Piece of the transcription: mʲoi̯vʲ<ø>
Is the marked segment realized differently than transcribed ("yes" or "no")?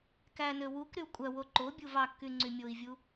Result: yes